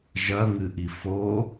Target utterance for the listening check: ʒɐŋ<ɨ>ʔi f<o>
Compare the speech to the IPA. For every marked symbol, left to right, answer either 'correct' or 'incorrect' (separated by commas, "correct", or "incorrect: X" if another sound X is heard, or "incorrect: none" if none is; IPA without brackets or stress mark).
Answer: correct, correct